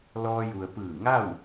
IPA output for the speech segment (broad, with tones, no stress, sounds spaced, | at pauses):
l ɔː˧ j u˩ ə̯ p ɯː˧˩ ŋ a˥˨ w